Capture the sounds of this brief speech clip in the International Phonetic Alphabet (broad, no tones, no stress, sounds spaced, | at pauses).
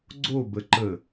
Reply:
ɡ͡ǀ o b ə ǃ ə